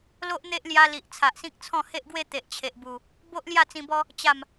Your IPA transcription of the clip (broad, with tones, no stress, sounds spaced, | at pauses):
l o˦ ʔ n̪ e˦ ʔ l j a˧ l i˨ ʔ t͡sʰ a˨ ʔ s ĩ˦ k̚ t͡sʰ ɔ̃˥˧ h e˦ ʔ ɡ w e˦ t̪ e˨ ʔ t͡ɕʰ e˨ ʔ b u˨˩ | b o˦ ʔ l j a˥˧ t͡s ĩ˧ b ɔ˦ | t͡ɕ a˨˩ m